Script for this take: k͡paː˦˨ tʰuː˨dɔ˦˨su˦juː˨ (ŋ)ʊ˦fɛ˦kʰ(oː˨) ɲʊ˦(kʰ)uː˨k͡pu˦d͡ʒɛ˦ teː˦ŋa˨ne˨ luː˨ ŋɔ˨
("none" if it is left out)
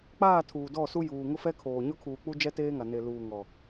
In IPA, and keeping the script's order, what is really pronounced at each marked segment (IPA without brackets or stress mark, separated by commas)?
ŋ, oː˨, kʰ